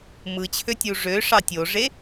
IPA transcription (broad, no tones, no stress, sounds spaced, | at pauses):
m ɯ t͡ɕʰ ø tʲ u ʐ ø ʂ ɑ tʲ o ʐ e